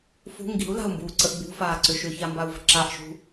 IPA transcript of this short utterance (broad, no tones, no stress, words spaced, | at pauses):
fṳ ŋɡi̤u̯la̤u̯mbuːǀəʔ bṳfaːǀʏ ʃʏçambau̯və̤ ǁaʔʃṳ